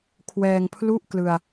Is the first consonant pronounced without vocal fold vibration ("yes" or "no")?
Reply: yes